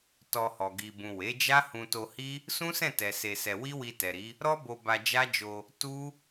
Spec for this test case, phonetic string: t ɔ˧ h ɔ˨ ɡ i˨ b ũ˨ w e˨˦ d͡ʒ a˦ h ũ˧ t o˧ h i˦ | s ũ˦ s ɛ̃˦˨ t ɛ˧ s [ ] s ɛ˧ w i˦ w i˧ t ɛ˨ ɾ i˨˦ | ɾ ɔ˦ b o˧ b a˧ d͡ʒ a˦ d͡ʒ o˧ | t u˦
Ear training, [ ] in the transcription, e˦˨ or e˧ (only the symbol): e˧